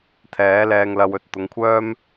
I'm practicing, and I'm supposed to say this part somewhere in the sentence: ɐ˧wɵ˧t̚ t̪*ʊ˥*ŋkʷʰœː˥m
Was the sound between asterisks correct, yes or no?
no